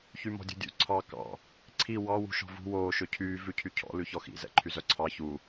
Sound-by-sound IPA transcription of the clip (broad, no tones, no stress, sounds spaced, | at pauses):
ç y m ɔ̤ dʲ ṳ dʲ ṵ ǀʰ ɑ k ɑ̰ | ǀʰ i w ɑ w ṳ ʃ ɔ̤ v ṳ w oː ʃ ɵ cʰ yː v ʉ cʰ y cʰ ɔ̰ l ʉ ç ɔ x ḭ z ɛ̰ ǃʰ y z œ ǀʰ ɑ ç u